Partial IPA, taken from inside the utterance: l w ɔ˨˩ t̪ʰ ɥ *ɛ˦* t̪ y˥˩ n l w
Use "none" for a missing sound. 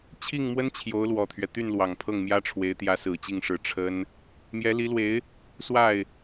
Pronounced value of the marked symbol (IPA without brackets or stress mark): ɛ˦